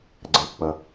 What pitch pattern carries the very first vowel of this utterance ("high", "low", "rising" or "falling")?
low